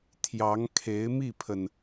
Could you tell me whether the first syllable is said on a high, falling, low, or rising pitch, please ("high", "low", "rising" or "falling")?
rising